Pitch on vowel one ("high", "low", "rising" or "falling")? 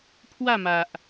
falling